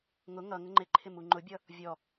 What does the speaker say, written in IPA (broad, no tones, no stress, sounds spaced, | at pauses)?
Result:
ŋ ʊ ŋ ʌ ŋ ə ŋ͡ǃ ɪ ǃʰ ɪ m u ŋ͡ǃ ʊ bʲ ʌ | vʲ ɔ